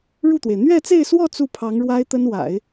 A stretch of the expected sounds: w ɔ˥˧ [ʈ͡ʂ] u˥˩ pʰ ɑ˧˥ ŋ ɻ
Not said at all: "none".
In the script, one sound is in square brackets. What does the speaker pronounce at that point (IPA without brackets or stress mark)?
t͡s